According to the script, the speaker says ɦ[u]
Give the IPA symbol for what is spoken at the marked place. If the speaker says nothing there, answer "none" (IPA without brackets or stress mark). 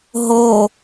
o